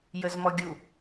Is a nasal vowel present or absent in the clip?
absent